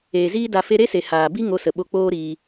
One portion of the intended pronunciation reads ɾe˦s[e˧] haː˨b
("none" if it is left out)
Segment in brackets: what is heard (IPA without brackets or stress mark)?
e˨